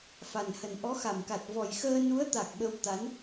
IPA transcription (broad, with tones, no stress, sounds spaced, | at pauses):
f a˨˩ n h ə˨˩ n ʔ ɔ˨˦ x a˧˩ m k a˨˩ t̚ v ɔ˨˩ j x əː˧ n u˨˦ ə̯ t̪ a˨˩ k̚ ɓ ə˧ w t̪ a˨˦ n